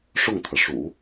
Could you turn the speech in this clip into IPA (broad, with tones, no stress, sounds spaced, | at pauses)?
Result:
ʂ ʊ˥˩ ŋ t̪ʰ ɤ˩ ʂ ṵ˨˩˦